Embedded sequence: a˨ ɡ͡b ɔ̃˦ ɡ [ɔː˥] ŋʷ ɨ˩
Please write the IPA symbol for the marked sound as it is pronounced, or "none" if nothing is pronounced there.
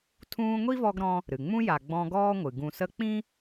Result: ɔː˥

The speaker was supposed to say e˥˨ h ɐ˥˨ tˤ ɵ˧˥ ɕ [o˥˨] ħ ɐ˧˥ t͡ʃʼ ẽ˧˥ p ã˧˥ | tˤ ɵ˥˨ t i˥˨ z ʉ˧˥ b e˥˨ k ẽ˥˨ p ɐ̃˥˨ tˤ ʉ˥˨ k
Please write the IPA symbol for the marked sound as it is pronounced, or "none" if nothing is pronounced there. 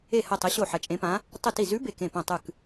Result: o˥˨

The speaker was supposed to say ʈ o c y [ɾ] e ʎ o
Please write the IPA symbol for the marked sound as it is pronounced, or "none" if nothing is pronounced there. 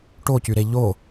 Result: ɾ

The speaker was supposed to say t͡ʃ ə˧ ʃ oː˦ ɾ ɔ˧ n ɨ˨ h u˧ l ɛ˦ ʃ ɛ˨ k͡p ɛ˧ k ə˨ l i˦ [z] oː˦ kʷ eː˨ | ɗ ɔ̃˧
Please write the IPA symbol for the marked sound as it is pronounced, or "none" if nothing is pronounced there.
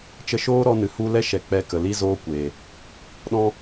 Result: z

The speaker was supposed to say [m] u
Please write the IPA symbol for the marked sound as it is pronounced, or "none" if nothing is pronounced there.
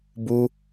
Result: b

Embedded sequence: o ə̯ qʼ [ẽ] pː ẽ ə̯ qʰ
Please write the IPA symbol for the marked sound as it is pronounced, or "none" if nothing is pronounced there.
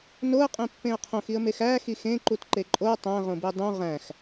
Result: ẽ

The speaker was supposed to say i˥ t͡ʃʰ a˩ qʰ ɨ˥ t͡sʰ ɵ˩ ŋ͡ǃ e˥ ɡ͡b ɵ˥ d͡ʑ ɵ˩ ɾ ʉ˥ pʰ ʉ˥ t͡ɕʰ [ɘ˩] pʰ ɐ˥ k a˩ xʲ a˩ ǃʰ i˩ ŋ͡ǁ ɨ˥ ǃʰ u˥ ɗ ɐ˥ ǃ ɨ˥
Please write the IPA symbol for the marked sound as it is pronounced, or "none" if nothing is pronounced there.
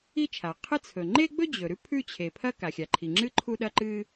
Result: e˩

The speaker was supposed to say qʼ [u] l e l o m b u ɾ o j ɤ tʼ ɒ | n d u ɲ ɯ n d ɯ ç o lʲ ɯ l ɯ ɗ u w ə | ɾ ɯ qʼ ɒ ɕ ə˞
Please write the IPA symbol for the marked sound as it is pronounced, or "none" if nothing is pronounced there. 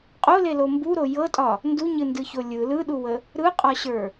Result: o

